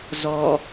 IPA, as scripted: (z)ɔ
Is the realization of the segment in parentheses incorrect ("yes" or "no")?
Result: no